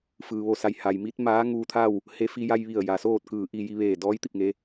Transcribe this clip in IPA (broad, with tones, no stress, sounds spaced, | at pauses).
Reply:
f ɯː˩ ʋ o˧ s a˩˧ j h a˩ j m i˧˥ t̚ m aː˧˥ ŋ uː˧ t̪ʰ a˥˨ w | h e˧ f i˧ j a˧ j ʋ i˧˩ ə̯ j a˩ s oː˥˨ t̚ k ɯː˧˩ ʔ i˥˨ j i˧ ʋ eː˧˩ d ɔː˧˥ j t̪ i˧˩ p̚ ŋ e˩˧